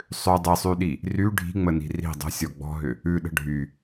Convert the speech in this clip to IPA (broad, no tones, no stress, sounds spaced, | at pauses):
sˤ ʏ dˤ i sˤ y ɗ i | r y ɖʱ i̤ ŋ͡m ə n i̤ r i̤ dˤ ə̤ sʲ ɔ ɡ͡b ɔ̤ ɦ ʏ | ʉ ɗ ə̤ ɖʱ y